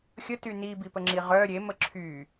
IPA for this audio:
xʲəty nibipəŋ͡ǁi ʁœ ɾʲemə ǁʰy

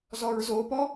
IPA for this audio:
zɔɹzopɔ

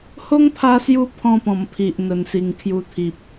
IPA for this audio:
ho˦ŋpʰa˧sju˧ pʰɔ̃˥˧pɔ̃˨˩mpʰi˨ʔ n̪ə˨˩nsi˨˩ŋkʰju˧ t̪ʰi˨p̚

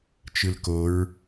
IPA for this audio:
t͡ʃɯlkoɹ

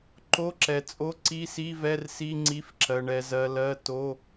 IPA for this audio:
ǃo˧˥˧ǁɛ˨t͡sʼo˧˥˧ ǀi˧˥˧si˧˥˧vɛ˧˥˧rsi˧˥˧ ŋ͡ǀi˧˥˧fǁɜ˨ɳɛ˨ zɜ˨ lɜ˧˥˧ to˧˥˧

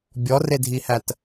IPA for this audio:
bʲɔredʱihæt

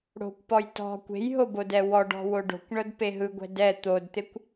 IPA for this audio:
ɽo̤kʷpɔj tɔ̤ kʷe̤jɦobodɛ wɔɖɔ̤wo ɖo̤kʷɳɤdpe ɦɯɡʷɛ̤d ɛ t̪odt̪ekʷ

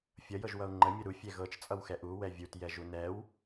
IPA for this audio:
fʲʌjɤʒwʌu̯ ŋ͡ǃəmʲɤ ɾufʲɛ ɣɤt͡ʃt͡sʼʌwxɛ ʔuwɛ vʲutjɛʒu nɛw

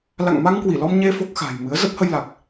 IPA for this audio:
la̰˧˨ŋma˧ŋkwi˧˩lɔ˧m ɲe˧ fo˦˥k̚xa̤˨˩j mɨ˨˦ə̯ zə˦˥p̚hə˧jla˨˩k̚

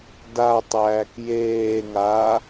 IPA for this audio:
datˤæːk jeːŋaː

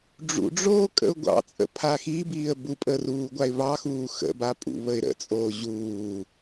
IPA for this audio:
ɖ͡ʐṵɖ͡ʐoː kʼə̰ʊ̯ɡʷɑ̰t͡sʼə̰ pʰaxibiːə̯ bupʼə ruːɡʷaɪ̯βɑxuː xə̰ba pʼṵβəɪ̯ɾə̰t͡sʼoː ʑuː

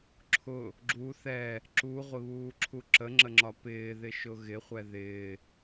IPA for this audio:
ǁʰʊ | ɡ͡ǁu θɛ | ǁuʁʷɪβuːǁʰu ǁəŋ͡ǁəŋ͡ǁɒ pɪːðɪʃʊ ɣɪχʷɛ ðɪː

